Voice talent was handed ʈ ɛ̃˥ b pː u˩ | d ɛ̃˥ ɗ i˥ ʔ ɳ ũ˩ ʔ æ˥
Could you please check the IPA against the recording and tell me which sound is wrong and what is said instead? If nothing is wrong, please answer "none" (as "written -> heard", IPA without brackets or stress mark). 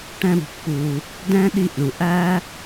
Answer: none